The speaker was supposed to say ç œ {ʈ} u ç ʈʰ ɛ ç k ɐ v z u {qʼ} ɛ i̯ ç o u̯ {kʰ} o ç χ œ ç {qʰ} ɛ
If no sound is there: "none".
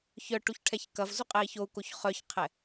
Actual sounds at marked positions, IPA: ʈ, qʼ, k, qʰ

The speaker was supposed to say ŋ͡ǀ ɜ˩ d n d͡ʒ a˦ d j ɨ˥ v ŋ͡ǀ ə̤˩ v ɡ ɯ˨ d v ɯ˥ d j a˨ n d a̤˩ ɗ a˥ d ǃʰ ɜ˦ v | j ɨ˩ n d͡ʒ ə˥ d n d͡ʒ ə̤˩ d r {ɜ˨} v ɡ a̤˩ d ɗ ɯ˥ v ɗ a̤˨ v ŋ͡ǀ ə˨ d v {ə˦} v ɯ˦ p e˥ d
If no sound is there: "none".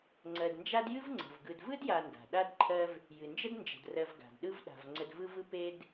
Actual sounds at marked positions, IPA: ɜ˨, ɯ˦

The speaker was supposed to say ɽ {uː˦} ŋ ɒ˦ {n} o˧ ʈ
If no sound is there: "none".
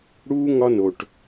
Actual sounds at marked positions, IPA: uː˦, n

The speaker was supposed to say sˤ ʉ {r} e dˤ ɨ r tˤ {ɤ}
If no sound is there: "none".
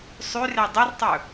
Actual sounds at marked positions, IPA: r, ɵ

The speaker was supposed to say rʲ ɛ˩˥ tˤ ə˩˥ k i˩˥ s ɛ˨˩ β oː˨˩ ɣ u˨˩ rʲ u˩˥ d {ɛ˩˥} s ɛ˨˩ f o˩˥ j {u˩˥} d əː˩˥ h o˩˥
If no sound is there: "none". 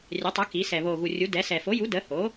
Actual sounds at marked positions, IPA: ɛ˩˥, u˩˥

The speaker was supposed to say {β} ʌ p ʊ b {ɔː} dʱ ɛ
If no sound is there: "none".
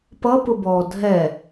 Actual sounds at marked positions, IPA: p, ɔː

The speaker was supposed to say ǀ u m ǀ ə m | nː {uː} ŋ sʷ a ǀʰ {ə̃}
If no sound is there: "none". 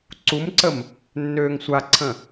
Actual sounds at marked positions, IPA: øː, ə̃

